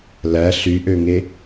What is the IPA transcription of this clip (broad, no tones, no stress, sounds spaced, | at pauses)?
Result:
l æ ɬ y ʔ ø ŋ e